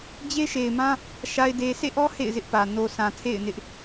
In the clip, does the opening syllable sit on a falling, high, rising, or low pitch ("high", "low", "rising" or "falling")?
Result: high